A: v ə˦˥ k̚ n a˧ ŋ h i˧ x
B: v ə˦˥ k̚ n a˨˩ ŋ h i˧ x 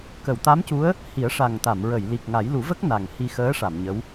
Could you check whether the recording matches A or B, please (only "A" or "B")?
B